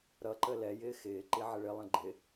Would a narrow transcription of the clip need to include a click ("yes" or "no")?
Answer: yes